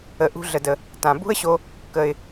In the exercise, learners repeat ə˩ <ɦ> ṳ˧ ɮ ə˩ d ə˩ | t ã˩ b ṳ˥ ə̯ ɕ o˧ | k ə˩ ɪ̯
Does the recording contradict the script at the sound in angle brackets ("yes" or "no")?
yes